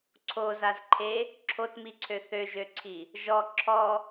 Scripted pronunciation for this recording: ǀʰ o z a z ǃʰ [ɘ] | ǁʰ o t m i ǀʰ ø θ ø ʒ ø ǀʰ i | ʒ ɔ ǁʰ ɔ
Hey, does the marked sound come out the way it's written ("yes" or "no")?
no